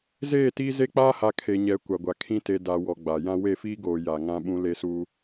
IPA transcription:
z eː˦˨ t iː˦ z e˦ k͡p aː˦ h a˨ kʰ e˨ ɲ ɛ˨˦ kʷ a˨ ɡʷ a˨ kʰ ĩ˦ t e˨ d a˨ w ɔ˨ ɡ͡b a˨ j ã˦ w e˦˨ f iː˦ ɡ oː˨ j a˨ ŋ ã˦ ɓ ũ˦ l e˦ s uː˦

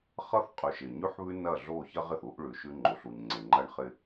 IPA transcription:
χ ʌ˦ θ qʼ ʉ˨ ʃ ɪ˨ ɲ ʉ˦ ħ β ʉ˦ n ɐ˦˨ ɮ o˦˨ ç ɐ˦ ʁ ɪ˨ θ u˦ ʔ ɭ ʉ˨ ʃ ʉ˦ ŋ͡ǃ o˨ ɬ u˨ ɲ ŋ͡ǀ e˨ ŋ͡ǃ ɐ˦ ɳ χ ɪ˦

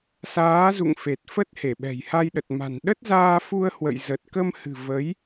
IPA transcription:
s aː˨˦ z ṵ˧˨ ŋ f e˨˩ t̚ f ə˦˥ t̚ h e˧˩ ɓ ɛ̤˨˩ j h a˧ j ɗ ə˨˩ t̚ m a̤˨˩ n ɗ ə˦˥ t̚ z aː˧ f u˧ ə̯ h w ə̰˧˨ j z ə˨˩ t̚ k ə˧ m h ɨ̤˨˩ v ə˨˦ j

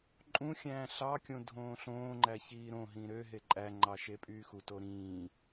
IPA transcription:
ǃʼ ũ xʲ æ̃ː ɬ ɑ kʲ õ dʱ õː ɬ õː ŋ͡ǃ æ ç iː ɾ õ ɦ ĩː ɾ ø ɦ e ǃʼ æ ŋ͡ǃ ɑ ʃ e pʼ yː x u t o ɾ ĩː

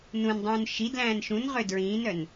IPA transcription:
n ũ n dˤ ũː n ʃ i d l æ̃ː n ʃ ũ n ʁ ø d ɹ ĩː n œ n

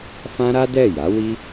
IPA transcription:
f ã˦ ɾ a˦ d ɛ˦˨ j a˨˦ w i˦

